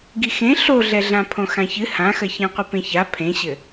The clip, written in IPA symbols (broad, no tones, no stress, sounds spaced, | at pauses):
ɡ i x ẽ ɬ o ɮ ɛ ɮ ã pʰ õ x ã ç ɨ h ã x ɐ ç ã qʷ ɨ p ẽ ç a pʰ ẽ ɕ ɘ